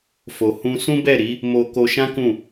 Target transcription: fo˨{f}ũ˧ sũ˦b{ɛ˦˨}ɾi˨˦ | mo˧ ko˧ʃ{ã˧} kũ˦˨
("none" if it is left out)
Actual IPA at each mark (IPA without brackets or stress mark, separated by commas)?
h, ɛ˦˨, ã˦